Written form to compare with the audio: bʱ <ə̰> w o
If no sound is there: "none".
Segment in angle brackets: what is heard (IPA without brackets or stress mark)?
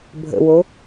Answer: ə̰